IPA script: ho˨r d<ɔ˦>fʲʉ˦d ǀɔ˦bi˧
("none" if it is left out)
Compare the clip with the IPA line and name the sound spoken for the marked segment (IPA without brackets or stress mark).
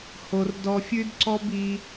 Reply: ɔ˧